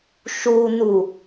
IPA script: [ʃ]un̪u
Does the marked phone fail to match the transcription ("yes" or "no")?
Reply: no